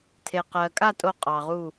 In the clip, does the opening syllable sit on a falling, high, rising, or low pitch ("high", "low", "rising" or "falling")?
low